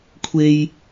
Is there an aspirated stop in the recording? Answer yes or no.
yes